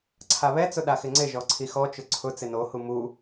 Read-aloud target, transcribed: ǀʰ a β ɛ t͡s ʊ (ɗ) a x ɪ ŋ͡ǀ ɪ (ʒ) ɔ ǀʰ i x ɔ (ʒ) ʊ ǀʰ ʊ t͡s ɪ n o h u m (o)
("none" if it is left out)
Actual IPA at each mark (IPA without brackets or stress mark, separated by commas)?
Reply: ɗ, ʒ, t͡ʃ, u